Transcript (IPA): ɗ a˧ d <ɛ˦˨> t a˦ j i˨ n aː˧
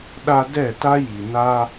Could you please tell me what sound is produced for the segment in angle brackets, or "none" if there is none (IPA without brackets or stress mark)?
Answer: ɛ˦˨